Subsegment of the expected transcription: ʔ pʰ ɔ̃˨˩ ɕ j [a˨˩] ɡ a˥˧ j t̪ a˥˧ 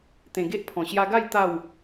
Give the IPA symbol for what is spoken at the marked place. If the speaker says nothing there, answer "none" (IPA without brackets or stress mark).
a˧